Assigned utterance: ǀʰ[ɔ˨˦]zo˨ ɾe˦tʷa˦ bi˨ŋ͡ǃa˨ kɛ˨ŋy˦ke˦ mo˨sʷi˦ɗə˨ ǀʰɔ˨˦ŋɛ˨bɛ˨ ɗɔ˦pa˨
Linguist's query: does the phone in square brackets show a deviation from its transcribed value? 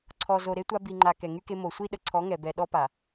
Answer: yes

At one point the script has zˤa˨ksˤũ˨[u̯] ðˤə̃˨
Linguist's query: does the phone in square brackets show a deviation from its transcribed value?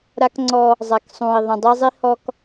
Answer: yes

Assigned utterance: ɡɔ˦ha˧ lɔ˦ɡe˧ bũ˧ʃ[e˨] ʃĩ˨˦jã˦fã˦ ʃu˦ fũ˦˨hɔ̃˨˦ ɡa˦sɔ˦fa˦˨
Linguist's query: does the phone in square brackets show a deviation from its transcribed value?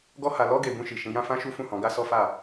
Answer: yes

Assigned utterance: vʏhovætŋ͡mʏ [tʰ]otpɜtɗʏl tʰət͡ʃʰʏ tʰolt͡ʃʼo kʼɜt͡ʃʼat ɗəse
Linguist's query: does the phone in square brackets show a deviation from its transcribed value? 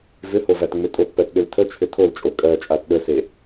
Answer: yes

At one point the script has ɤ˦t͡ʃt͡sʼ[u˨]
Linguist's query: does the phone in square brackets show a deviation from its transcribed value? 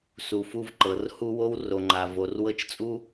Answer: yes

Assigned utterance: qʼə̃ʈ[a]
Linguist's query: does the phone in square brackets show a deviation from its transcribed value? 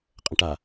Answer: no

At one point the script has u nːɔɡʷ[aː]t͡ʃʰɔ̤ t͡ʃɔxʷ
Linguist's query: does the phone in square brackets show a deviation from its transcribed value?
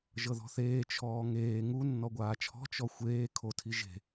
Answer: no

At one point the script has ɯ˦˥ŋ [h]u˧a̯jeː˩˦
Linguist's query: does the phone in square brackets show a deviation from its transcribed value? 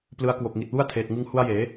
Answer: no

